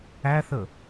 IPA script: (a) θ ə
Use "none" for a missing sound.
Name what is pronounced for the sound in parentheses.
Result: æ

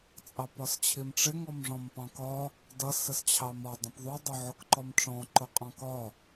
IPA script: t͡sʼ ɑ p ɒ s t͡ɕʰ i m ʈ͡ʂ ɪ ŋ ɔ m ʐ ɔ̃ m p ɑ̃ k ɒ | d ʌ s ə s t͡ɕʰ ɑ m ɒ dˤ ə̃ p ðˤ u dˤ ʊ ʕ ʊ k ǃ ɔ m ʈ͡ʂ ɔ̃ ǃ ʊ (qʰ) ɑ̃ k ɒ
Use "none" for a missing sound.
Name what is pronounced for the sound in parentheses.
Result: qʼ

